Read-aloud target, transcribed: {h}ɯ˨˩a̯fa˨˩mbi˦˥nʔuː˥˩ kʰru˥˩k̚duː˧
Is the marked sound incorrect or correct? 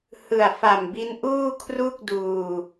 correct